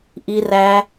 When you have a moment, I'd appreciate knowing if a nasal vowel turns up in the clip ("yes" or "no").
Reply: no